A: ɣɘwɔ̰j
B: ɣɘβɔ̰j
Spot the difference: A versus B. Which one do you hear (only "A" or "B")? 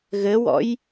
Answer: A